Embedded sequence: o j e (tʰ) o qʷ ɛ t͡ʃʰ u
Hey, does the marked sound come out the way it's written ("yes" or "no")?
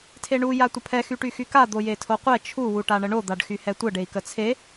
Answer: yes